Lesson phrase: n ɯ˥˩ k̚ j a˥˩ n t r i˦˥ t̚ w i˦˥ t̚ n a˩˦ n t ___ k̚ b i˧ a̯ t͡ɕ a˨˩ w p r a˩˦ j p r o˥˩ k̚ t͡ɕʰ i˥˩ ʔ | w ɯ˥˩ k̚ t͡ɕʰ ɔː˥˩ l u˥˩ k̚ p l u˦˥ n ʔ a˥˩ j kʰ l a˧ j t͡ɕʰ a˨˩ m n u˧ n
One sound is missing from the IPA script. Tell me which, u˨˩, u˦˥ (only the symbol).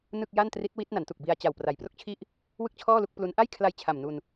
u˨˩